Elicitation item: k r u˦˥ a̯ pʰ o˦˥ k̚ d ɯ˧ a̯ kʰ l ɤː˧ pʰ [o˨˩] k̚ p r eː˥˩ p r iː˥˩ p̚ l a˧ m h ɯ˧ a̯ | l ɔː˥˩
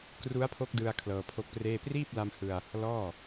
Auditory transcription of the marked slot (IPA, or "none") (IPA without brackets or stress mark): o˦˥